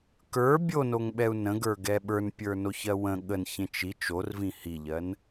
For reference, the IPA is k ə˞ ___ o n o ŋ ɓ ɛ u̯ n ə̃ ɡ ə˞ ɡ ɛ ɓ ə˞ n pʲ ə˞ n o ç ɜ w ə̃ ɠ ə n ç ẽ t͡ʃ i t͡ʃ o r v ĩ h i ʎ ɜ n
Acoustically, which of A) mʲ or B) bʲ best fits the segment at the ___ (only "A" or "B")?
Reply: B